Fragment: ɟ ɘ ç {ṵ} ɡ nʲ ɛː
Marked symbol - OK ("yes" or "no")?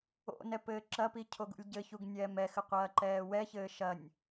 no